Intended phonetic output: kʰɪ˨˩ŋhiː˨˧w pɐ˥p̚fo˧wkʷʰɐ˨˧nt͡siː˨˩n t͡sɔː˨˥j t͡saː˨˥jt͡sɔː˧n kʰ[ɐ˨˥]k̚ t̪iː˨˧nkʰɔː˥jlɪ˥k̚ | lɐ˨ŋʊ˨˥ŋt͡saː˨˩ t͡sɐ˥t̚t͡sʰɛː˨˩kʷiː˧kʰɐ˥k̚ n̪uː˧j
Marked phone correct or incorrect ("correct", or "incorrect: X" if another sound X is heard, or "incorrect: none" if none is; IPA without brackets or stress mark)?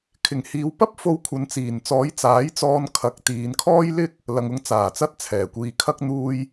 correct